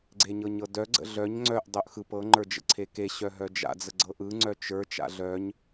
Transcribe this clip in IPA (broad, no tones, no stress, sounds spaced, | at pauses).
ɡ͡ǀ e ɲ ɤ ɲ ɤ d œ ɡ͡ǀ ə̰ ɮ œ ɲ ŋ͡ǀ œ ʔ dˤ œ ʔ x ɯ p ɤ ŋ͡ǃ ə˞ d͡ʒ ə̰ ǀʰ e k e ɕ œ ɦ œ d͡ʒ a̰ d͡z ə ɡ͡ǀ ɤ ʔ ɯ ŋ͡ǀ œ t͡ʃ ə˞ t͡ʃ a̰ ɮ œ ɲ